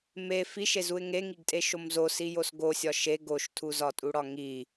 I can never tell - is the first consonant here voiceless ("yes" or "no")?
no